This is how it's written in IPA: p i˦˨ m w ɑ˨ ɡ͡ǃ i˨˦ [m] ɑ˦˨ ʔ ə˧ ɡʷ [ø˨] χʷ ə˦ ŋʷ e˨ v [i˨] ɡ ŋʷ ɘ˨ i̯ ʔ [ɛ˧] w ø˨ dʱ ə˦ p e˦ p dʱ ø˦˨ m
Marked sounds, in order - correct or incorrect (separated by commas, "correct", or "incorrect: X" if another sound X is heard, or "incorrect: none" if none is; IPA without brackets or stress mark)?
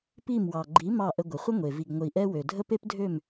correct, incorrect: ə˨, correct, correct